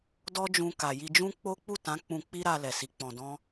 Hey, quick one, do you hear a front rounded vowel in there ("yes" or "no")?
no